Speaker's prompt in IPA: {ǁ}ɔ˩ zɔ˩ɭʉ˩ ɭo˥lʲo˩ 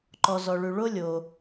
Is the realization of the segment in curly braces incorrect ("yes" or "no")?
yes